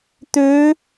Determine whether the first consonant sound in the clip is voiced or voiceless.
voiceless